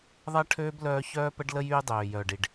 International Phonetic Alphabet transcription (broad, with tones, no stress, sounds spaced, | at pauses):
ðˤ ɐ˦ ʈʰ øː˦ b l œː˦ ç œː˦ p ə˦ ɖ l ə˦ j yː˦ dˤ øː˨ j œː˨ ɖ i˨ ɖ